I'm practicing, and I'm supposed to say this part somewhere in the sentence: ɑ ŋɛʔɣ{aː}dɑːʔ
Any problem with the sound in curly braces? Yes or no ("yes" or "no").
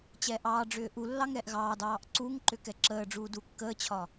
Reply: yes